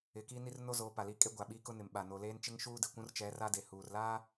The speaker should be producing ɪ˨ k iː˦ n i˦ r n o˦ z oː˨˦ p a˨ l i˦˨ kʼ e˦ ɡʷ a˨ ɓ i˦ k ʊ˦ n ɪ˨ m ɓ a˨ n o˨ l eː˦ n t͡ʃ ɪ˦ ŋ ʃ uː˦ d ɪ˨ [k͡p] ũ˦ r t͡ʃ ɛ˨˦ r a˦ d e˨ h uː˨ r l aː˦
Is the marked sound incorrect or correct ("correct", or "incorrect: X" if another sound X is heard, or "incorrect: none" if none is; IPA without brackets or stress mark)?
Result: incorrect: kʷ